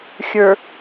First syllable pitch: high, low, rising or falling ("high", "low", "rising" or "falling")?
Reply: low